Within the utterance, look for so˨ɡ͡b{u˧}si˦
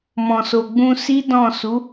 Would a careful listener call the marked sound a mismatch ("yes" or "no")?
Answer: yes